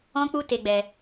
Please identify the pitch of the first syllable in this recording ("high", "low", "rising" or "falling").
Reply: high